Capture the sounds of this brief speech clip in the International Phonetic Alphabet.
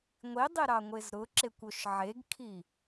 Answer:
ŋʷidˤiɾɑŋʷez ɾʊǁekʷoʃ ʕeɡkʰi

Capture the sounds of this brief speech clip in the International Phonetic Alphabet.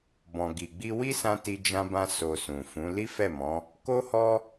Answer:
bɔ̃˨ɡi˨ɡ͡bi˧ wi˦sã˧ ti˧d͡ʒã˧bã˧ so˨ sũ˨fũ˨˦ li˦fɛ˦˨mɔ̃˨˦ | ko˦hɔ˦

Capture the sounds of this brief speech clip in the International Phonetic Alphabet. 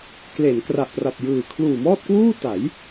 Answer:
kle˩˦n kra˨˩ʔpra˨˩p̚jɯː˨˩ kʰluː˨˩mɔː˥˩t̚kwuː˥˩ ta˩˦j

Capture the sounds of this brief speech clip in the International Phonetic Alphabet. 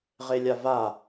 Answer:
ʁelʲava

